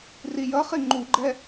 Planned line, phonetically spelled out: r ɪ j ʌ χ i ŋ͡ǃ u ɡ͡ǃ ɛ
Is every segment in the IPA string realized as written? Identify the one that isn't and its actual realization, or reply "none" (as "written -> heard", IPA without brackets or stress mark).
ɪ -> i